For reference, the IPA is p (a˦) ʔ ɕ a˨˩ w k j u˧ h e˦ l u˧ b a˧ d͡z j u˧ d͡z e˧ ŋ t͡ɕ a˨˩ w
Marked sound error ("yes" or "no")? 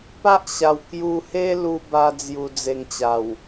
no